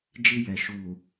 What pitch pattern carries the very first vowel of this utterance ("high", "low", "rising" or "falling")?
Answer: high